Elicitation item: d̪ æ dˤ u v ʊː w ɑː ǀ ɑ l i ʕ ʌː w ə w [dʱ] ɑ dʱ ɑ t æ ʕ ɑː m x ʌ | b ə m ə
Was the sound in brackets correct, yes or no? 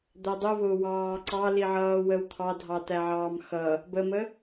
no